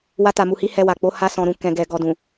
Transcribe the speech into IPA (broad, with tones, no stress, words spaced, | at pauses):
wa˧ta˨mu˨hi˨˦ hɛ˧wa˨k͡po˨˦ ha˧sɔ̃˨ɾũ˨ kɛ̃˨ɡɛ˨ ɡɔ˨dũ˨